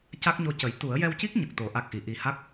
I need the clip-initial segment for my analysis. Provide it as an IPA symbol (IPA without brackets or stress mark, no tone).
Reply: c